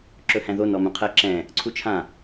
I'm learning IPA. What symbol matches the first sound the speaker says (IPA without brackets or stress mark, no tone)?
ǁ